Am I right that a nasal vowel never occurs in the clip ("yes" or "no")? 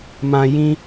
no